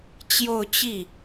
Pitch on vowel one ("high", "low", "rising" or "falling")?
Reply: falling